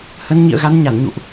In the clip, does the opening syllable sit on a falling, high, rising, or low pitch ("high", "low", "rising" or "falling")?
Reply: rising